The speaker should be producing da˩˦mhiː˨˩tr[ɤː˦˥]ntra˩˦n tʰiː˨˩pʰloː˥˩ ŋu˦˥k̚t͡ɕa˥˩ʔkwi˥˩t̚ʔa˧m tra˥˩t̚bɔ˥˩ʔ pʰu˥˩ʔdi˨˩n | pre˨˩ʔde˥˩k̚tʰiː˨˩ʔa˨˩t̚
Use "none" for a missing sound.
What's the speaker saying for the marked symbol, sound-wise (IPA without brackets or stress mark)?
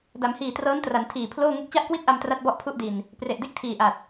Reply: ɤː˦˥